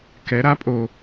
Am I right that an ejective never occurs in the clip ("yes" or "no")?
no